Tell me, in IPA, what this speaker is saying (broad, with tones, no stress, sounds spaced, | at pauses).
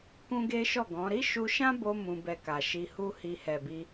k ũ˦ ɡ e˦ ʃ ɔ˦˨ ɡ ɔ̃˨˦ ɾ i˦ ʃ u˧ ʃ ã˦ b o˧ m ũ˧ b ɛ˧ k a˨ ʃ i˧ h u˦ h i˧ h ɛ˨ b i˧